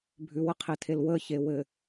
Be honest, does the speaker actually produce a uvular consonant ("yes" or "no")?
yes